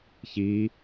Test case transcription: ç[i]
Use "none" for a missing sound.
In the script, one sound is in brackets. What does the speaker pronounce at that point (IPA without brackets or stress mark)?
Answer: i